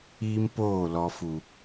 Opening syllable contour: high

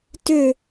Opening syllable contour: falling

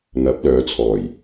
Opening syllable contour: rising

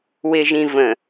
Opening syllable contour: low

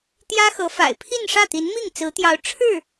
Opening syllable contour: high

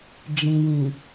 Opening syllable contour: low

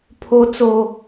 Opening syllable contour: low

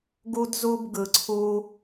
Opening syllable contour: high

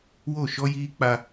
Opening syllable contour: falling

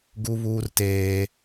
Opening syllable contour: high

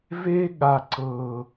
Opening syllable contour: high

